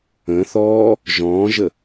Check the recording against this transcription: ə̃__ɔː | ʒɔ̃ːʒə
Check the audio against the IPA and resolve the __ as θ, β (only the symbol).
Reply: θ